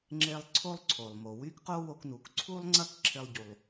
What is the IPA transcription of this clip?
ŋ͡ǁe˧lˠ ǀʰo˥lˠǀʰo˩lˠmo˩ wy˥kqo˥wo˧knu˩k ǀʰu˥lˠŋ͡ǀɐ˥k ǁʰɪ˧lˠɟu˩lˠ

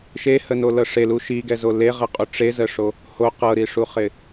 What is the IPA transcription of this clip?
ʃehənolɤ ʂelu ʃiɡɛzo leʁəqʼu ʈ͡ʂezəʂo | ho qɤɾiʂuχɪ

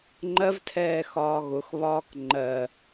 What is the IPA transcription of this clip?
ŋ͡ǃɜvtʰɛː xɒːɣʊxβɒːk ŋ͡ǃɜ

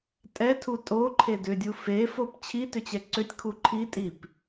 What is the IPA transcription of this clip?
tʼɛtʰu tʼoǃʰe dʏdʲu fefop t͡ɕʰitʏt͡ɕɛ ǀʏtʲkʰu ǃʰitʼip

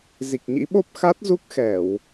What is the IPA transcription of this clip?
zi˨˩k̚ɲḭ˧˥ɓo˦˥p̚ xa˦˥t̚zu˦˥k̚ xɛ˧˩˨w

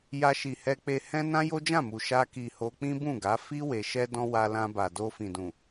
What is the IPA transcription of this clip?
ja˧ʃi˨ hɛ˧k͡pe˧ hɛ̃˦nã˦ jo˦d͡ʒã˦˨mu˨ ʃa˧ki˨ ho˧k͡pĩ˦bũ˦˨ɡa˨˦ fi˦ we˧ʃɛ˦dɔ̃˦ wa˧lã˧ba˨ do˧fĩ˨dũ˨

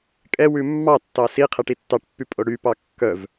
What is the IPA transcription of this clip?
kʼɛwʉ mːɑtːɑ si qʰɛʈitːɑʈpːy pʼoɽypɑ kːœv

